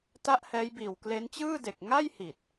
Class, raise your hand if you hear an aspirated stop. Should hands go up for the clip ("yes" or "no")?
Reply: no